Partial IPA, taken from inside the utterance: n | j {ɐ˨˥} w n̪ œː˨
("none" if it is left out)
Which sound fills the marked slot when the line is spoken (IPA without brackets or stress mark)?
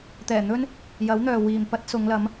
ɐ˨˥